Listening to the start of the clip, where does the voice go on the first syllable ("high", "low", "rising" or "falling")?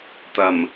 low